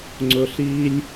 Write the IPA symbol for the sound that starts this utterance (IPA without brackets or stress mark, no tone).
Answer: ŋ͡ǀ